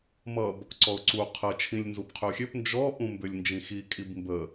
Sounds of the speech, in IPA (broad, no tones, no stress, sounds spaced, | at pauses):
m ʌ b | ǀ ɔ ʊ̯ ǀ u qʰ ə t͡ʃʰ ĩ lʲ n z u p qʰ ʏ ʊ̯ xʲ ø p n d͡ʒ ɔ ʔ ũ m b ʏ lʲ n d͡ʒ ĩ x i kʼ i b m b ə